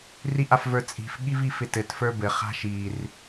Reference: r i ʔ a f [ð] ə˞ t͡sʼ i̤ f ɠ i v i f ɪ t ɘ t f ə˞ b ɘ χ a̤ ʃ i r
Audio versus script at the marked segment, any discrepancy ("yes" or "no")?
yes